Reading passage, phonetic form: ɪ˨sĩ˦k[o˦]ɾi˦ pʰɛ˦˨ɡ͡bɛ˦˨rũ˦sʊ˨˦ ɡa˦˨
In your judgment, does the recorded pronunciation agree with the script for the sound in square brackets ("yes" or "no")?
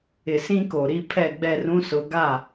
no